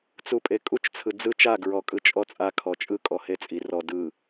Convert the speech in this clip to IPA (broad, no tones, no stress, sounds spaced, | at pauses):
t͡s u pʼ e kʼ u t͡ʃ t͡sʰ ɯ d͡z ɯ t͡ʃ a ɡ ɹ ɔ kʼ ɯ t͡ʃʼ ɔ t͡sʼ a kʰ ɔ t͡ʃʼ ɯ kʼ ɔ h e t͡sʼ i r ɔ d ɯ